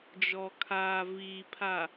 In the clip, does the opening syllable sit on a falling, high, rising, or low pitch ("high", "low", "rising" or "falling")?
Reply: low